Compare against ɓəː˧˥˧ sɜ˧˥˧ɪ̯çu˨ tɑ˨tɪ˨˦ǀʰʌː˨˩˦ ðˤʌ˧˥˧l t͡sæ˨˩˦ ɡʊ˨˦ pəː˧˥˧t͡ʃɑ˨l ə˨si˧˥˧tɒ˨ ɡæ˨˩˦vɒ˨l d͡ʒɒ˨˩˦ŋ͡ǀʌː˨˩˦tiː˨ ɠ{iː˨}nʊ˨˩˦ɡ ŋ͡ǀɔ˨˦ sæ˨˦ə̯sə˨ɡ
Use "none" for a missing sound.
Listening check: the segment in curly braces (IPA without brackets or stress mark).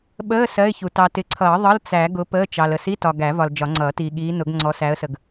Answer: iː˨˦